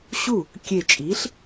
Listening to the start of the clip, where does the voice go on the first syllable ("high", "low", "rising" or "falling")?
falling